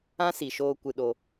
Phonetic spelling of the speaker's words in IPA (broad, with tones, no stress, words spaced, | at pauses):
ã˦si˨ʃoː˧ kʷɨ˧ɗo˧